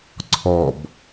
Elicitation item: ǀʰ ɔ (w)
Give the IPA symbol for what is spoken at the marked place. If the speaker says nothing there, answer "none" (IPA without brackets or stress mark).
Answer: b